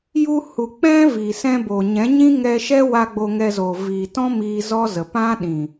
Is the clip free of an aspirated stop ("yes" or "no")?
yes